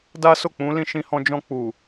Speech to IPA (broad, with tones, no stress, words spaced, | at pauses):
da˦so˦˨ k͡pũ˨˦lĩ˧ ʃĩ˧hɔ̃˧ d͡ʒɔ̃˧k͡pu˨